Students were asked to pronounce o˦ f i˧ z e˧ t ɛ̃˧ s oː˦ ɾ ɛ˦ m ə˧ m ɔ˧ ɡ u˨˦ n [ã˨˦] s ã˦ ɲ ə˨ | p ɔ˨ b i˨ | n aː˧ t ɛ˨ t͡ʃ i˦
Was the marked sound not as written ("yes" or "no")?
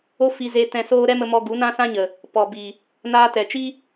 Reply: yes